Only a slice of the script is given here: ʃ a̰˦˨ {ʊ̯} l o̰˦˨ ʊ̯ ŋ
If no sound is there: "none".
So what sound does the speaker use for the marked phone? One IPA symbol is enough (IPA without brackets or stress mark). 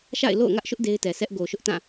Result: ɪ̯